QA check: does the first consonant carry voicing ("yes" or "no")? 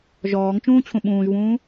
yes